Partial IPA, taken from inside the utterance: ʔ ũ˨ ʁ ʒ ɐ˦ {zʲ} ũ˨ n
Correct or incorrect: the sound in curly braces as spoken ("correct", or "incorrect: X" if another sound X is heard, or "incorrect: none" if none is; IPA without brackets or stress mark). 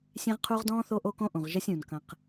incorrect: sʲ